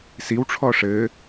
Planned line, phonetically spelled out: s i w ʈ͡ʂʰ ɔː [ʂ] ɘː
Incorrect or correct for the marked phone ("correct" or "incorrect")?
correct